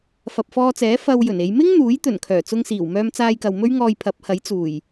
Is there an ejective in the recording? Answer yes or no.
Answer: no